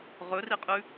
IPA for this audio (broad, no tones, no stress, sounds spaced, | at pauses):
ʁ ɵ r i qʼ ʉ